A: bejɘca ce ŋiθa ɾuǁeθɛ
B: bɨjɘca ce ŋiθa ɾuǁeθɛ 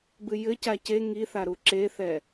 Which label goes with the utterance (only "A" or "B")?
B